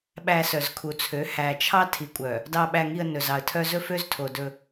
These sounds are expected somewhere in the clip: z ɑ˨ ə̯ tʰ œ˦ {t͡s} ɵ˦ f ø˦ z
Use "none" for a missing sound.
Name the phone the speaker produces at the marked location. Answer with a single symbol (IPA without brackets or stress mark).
z